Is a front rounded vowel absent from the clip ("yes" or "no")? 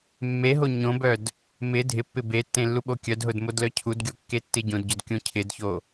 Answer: no